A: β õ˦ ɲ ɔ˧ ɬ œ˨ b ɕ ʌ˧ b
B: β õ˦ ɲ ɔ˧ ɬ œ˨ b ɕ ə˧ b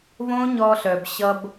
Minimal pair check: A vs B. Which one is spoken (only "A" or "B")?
A